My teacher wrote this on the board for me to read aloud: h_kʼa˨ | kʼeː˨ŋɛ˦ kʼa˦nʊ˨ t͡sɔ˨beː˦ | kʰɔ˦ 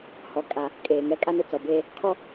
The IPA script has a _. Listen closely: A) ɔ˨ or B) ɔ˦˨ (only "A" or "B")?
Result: A